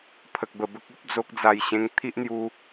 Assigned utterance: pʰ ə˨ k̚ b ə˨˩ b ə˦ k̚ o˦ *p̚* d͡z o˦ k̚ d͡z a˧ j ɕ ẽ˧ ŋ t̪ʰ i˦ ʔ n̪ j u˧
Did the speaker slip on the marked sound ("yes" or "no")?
no